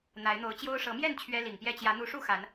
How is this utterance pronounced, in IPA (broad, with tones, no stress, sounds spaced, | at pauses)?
n̪ a˨˦ ɪ̯ n̪ o˨˦ ʊ̯ t͡ɕ j o˦ ʊ̯ ʂ ɤ˨˦ m j ɛ˥˨ n t͡ɕʰ ɥ ɛ˦ l i˨˩ ŋ p j ɛ˥˨ t͡ɕ j ä˨˦ n̪ u˨˦ ʂ u˥˨ x a˨˦ n